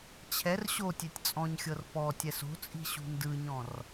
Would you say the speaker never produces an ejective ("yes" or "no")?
no